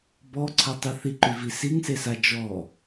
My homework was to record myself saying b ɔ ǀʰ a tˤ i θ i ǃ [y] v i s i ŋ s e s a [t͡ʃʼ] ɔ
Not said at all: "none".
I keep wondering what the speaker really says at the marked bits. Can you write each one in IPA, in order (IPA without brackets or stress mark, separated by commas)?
y, d͡ʒ